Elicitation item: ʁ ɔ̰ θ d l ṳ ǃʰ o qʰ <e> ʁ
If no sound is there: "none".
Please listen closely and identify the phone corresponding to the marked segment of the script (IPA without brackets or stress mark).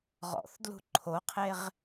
e